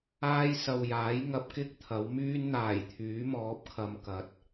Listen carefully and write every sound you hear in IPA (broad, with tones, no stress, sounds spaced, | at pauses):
aː˥ j s ɐ˨ w j aː˨˥ j ŋ ɐ˧ p̚ k ɪ˥ k̚ t̪ʰ ɐ˨˥ w m yː˥ n n̪ aː˨˩ j t̪ʰ yː˨˥ m ɔː˨˥ p̚ kʰ ɐ˨˧ m k ɐ˨˥ t̚